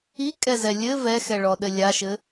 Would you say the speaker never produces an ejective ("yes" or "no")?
no